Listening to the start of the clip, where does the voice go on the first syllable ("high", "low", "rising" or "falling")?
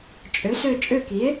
rising